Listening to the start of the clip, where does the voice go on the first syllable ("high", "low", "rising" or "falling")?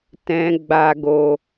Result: low